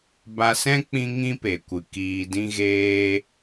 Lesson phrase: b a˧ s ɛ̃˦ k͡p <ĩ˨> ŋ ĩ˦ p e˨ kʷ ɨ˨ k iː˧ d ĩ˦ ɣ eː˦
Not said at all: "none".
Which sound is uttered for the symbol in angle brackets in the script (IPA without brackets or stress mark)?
ĩ˦